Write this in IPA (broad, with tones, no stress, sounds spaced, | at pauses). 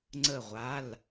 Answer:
ŋ͡ǀ ə˧˩ ʁʷ a˩˧˩ l